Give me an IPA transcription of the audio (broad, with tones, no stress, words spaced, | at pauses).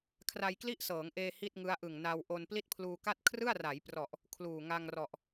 kʰra˧jkli˥˩ʔsɤː˩˦ŋʔeː˧ hi˥˩t̚ŋɯ˦˥a̯ʔɯ˨˩ŋ na˧w ʔo˧n pli˥˩t̚pʰluː˧ka˥˩t̚ kʰrɯ˥˩a̯ra˩˦jprɔ˨˩ʔ | kʰluː˨˩ŋa˧ŋrɔ˨˩ʔ